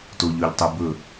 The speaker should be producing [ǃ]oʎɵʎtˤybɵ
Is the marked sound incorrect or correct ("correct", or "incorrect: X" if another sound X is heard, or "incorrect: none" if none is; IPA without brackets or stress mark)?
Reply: incorrect: t